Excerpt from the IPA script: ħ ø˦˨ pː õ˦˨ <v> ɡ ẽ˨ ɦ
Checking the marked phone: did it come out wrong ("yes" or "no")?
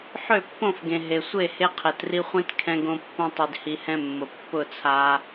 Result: yes